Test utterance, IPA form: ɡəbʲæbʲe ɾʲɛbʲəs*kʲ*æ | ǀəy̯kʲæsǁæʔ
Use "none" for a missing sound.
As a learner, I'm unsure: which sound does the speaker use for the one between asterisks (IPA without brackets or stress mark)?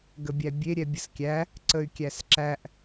kʲ